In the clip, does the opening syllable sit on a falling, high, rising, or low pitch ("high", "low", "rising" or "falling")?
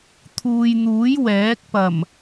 low